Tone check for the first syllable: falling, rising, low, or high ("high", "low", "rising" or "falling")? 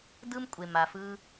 high